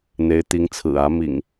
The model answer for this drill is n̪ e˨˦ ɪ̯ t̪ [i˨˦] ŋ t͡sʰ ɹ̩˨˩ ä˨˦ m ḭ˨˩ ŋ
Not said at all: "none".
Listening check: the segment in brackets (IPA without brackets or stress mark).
i˨˦